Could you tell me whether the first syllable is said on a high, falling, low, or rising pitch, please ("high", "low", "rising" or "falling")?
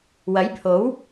rising